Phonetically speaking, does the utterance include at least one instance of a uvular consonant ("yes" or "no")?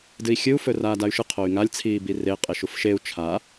yes